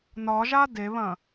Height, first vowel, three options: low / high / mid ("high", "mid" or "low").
low